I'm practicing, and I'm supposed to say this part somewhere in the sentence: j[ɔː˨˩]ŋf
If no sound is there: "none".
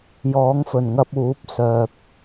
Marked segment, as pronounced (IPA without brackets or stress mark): ɔː˨˥